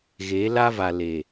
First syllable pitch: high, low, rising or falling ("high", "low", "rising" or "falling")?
rising